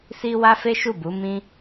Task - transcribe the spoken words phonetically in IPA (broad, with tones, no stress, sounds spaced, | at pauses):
s i˦ w a˦ f e˦ ʃ u˦˨ b u˨˦ m ĩ˦